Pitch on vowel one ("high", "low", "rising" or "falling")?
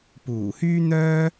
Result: low